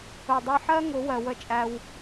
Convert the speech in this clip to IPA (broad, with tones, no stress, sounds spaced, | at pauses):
ʊ˨ dˤ ʌ˧ ħ ɜ˦ ŋ ʊ˨˦ w ɜ˨ w ə˦˨ t͡ʃʼ æ˧ w